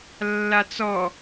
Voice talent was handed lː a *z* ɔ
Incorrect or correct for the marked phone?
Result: incorrect: t͡s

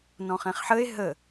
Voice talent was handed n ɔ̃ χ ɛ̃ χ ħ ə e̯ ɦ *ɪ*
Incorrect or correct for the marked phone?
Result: incorrect: ə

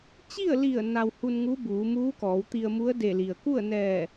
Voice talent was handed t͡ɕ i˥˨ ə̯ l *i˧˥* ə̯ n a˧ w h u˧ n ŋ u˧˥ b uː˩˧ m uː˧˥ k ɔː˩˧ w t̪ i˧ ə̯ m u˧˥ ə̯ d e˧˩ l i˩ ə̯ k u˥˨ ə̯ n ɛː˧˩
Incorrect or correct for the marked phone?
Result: incorrect: i˧˩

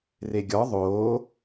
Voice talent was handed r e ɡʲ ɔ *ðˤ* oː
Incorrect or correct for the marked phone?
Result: correct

